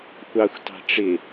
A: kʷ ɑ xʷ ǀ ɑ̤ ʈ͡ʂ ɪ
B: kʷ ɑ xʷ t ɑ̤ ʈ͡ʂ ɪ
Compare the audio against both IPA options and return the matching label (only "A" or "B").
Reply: B